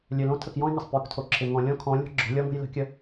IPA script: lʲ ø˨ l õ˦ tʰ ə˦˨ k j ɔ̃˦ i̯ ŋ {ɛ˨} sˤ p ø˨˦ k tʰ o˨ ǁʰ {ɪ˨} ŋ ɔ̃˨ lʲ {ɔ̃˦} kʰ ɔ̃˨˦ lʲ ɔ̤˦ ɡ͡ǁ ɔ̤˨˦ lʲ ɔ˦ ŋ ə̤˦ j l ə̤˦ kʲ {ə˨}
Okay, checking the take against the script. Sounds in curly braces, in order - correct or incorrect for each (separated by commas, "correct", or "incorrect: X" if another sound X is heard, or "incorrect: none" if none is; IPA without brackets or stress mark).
incorrect: ə˨, correct, correct, incorrect: ə˦